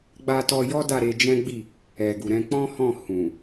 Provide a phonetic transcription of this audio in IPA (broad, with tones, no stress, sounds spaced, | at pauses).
ɡ͡b a˧ t ɔ˧ j ɔ˦ d a˦˨ ɾ e˧ d͡ʒ ɛ̃˦ ɡ͡b i˦˨ | ɛ˨ ɡ u˨ ɾ ɛ̃˧ k͡p ɔ̃˦ h ɔ̃˦˨ h ũ˨